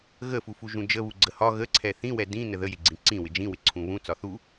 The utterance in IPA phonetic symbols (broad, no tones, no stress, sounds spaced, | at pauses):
ɣ ə f u f u ʒ ũ d͡ʒ ə β u ɡ͡ǀ ə h ɒ ɣ ə ǀʰ ɛ θ ĩ w ɛ d ĩ n ə ð ə j ɪ ɡ͡ǀ ĩ ǀ ĩ w ɪ d͡ʒ ĩ w ɪ ǀʰ ũ β ũ t͡s ɒ θ u